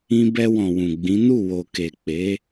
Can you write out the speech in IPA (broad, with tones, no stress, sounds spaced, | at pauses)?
ĩ˧ b ɛ˧ w ɔ̃˨ w ũ˨ ɡ͡b ĩ˨˦ n u˦˨ w o˨ k e˨ k͡p e˨˦